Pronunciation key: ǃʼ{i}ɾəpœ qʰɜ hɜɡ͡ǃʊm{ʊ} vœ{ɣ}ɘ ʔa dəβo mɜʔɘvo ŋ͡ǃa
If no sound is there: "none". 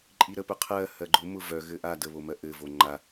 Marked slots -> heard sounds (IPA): i, ʊ, ɣ

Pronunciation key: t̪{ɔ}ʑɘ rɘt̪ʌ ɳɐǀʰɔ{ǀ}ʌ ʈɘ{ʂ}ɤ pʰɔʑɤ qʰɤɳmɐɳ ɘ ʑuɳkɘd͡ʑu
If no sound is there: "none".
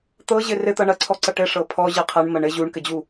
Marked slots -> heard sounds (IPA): ɤ, ǀ, ʂ

